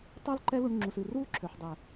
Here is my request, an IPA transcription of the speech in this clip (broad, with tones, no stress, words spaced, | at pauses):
tˤɜ˦l ǃɛ˦lu˧ɳŋ͡ǁu˨s ɨ˨ru˦lǁʰø˨ħdˤɛ˨